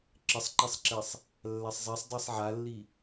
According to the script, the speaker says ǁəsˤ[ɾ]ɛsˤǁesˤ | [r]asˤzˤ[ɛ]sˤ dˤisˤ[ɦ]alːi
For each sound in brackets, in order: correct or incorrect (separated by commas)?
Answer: incorrect, incorrect, correct, incorrect